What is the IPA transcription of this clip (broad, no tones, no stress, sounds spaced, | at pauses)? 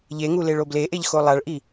ʎ e ŋ u l e ɭ o b l e ʔ e ʎ x o lˠ a ɭ ʔ i